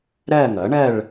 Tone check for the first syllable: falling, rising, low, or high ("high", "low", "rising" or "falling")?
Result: falling